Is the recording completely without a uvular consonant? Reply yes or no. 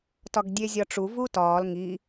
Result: yes